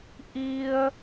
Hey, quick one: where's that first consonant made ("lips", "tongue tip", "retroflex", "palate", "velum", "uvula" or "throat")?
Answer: throat